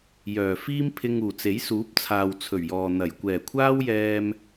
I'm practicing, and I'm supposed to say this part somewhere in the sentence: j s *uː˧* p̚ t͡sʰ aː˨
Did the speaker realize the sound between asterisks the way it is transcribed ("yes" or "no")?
no